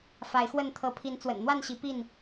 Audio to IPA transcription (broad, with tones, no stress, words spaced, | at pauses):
fa˨˦ɪ̯xwə˥˨n t̪ʰɤ˨˦pʰi˨˦n t͡swə̰˨˩nn̪wa˥˨nɕi˨˦ pi˥˨n